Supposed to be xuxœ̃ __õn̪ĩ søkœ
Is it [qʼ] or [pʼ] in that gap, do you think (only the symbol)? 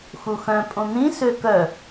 pʼ